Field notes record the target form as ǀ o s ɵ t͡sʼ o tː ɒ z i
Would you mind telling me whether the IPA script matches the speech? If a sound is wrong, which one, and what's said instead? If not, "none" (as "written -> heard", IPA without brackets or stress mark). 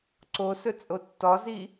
none